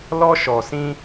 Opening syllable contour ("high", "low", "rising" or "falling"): high